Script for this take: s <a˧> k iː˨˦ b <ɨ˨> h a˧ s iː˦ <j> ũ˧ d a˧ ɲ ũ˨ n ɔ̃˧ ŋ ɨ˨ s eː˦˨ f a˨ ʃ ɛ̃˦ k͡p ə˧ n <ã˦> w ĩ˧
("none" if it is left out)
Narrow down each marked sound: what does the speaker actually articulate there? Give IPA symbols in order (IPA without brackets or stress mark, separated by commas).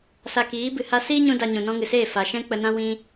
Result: a˧, ɨ˨, ɲ, ã˦